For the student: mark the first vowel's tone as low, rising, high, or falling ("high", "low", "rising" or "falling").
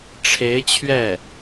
rising